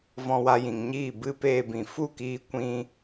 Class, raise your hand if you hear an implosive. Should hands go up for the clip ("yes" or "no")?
no